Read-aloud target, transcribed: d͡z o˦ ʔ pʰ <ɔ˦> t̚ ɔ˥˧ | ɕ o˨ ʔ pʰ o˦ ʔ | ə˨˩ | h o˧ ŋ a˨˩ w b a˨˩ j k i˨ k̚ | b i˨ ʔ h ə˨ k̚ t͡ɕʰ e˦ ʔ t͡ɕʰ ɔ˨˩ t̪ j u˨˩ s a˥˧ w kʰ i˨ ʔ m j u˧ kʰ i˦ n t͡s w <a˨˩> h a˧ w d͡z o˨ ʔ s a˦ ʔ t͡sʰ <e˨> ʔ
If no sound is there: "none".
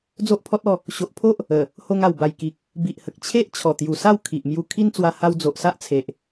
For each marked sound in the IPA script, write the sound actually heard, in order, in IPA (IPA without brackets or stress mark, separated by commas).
ɔ˦, a˧, e˨